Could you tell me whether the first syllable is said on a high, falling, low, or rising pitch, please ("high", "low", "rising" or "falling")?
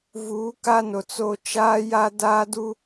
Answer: rising